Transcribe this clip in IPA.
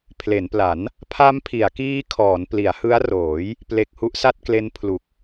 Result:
pʰ l e˩˦ n p l a˩˦ n | pʰ a˦˥ m pʰ i˩˦ a̯ k iː˦˥ kʰ ɔː˩˦ n p l i˩˦ a̯ h ɯ˦˥ a̯ r oː˩˦ j | p l e˨˩ k̚ h u˦˥ ʔ s a˥˩ t̚ k l e˦˥ n pʰ l u˨˩ k̚

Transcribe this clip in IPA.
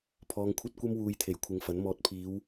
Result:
pʰ ɔː˧ ŋ kʷʰ ɐ˥ t̚ kʷ ɐ˥ m w uː˧ j t̪ʰ e˨˩ j kʷʰ ɪ˨˧ ŋ f ɐ˨˥ n m ɔː˧ t̚ pʰ iː˨˧ w

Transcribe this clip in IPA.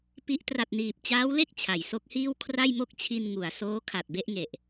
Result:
p i˦˥ ʔ t r a˨˩ t̚ n iː˨˩ p̚ t͡ɕ aː˦˥ w l e˥˩ k̚ t͡ɕʰ a˩˦ j s o˦˥ k̚ h iː˥˩ w kʰ r a˥˩ j m o˥˩ k̚ t͡ɕʰ i˧ n ŋ u˩˦ a̯ s oː˦˥ kʰ a˨˩ t̚ b e˥˩ ʔ ŋ e˨˩ ʔ

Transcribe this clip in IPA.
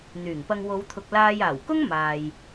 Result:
n̪ yː˨˩ ŋ p ɐ˧ ŋ w o˨˧ w t̪ʰ ʊ˨ k̚ l aː˧ j aː˨˩ w k ʊ˥ ŋ m aː˨ j

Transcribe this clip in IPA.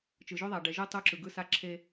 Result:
t͡ʃ ɯ˨ ʒ ɵ˦ ðˤ a˨ ɖ ɛ˨ ʒ ɯ˦ tˤ u˦ ǁ ɯ˨ ɡ ɯ˦ s a˦ ǁʰ e˦

